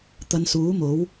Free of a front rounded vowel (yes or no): yes